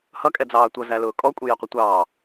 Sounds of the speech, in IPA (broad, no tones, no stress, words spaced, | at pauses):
hʌkʼɛd͡zɑː tʷʌzælʊː kʼɔkʷʼijɛqʷʌ tʷɑː